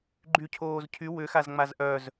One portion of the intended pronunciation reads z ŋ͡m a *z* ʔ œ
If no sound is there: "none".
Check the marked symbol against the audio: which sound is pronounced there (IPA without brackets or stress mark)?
z